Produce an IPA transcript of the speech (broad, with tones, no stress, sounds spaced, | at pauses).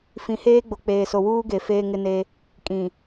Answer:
f ĩ˨ h eː˦ ɡ͡b o˨ k͡p eː˨ s o˨ w uː˦ ɡ e˨ f eː˦ ŋ ɪ˦ n e˦ | kʼ ĩ˨